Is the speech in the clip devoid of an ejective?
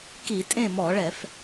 no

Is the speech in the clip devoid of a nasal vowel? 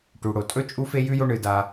yes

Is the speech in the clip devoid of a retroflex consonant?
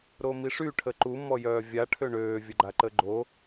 no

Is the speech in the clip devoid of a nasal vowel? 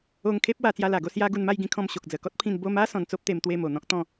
no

